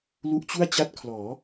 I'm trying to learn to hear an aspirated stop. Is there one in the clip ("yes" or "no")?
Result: yes